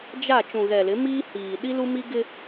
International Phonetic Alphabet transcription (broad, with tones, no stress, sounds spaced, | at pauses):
d͡ʒ a˦˨ t͡ʃ ũ˨ ɣ ɛ˨ l ɪ˨˦ m iː˦ h iː˨ ɗ i˦ l u˦ m i˦ ɡ ɪ˦